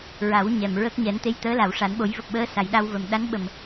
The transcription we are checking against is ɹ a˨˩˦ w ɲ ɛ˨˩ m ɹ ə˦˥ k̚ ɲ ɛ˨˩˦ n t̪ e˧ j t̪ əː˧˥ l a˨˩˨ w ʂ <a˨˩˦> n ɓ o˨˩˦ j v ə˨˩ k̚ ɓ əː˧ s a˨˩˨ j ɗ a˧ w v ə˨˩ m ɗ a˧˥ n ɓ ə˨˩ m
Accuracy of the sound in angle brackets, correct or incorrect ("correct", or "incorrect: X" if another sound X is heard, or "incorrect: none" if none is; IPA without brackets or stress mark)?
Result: correct